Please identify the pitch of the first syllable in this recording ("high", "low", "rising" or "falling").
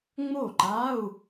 falling